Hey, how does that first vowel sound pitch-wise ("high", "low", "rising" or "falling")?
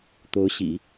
rising